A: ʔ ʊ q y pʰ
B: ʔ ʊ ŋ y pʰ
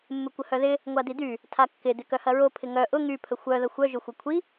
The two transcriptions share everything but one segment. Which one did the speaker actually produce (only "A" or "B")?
B